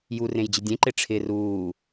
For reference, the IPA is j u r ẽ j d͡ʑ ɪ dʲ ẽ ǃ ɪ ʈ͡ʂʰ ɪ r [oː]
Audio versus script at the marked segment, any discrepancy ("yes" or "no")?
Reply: yes